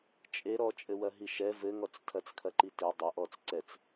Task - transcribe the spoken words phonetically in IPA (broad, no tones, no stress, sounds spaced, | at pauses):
t͡ʃʼ e ɾ ɔ t͡ʃʼ ɘ w ɐ ɦ i ʃ ɛ v ɘ ŋ ɔ t͡s tʰ ɐ t͡s kʰ ɐ ǃ i t e dˤ ɐ ʔ ɔ t͡s ǀ ɛ t͡s